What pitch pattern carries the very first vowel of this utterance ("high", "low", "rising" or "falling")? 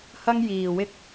high